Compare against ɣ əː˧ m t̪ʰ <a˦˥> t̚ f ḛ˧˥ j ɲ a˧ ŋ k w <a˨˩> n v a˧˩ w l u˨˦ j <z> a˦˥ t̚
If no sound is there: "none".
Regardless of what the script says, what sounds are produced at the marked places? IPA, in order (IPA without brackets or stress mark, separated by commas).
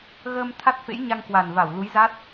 a˦˥, a˨˩, z